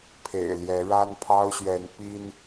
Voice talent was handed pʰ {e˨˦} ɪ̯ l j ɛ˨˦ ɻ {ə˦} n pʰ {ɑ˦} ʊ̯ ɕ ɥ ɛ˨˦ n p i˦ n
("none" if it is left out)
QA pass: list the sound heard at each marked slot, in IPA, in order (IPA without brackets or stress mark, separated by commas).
ḛ˨˩, a˦, ɑ˦